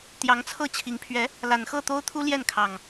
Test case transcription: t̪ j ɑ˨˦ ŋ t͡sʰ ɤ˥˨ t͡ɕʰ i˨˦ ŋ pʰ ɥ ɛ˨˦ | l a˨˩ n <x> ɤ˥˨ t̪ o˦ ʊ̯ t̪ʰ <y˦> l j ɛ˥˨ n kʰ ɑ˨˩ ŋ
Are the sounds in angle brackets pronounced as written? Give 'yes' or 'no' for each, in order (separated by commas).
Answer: yes, no